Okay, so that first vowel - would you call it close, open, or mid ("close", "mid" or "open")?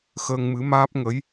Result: mid